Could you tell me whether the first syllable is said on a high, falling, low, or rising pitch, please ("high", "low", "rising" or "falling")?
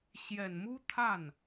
low